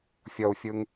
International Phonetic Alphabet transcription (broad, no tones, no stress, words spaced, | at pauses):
fʲʌu̯fʲɯŋ